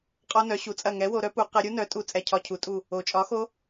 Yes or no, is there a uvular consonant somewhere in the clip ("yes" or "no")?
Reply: yes